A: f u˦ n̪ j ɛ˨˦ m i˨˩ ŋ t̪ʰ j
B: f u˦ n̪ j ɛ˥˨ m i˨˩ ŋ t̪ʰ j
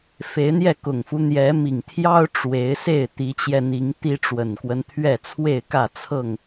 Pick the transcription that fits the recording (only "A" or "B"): A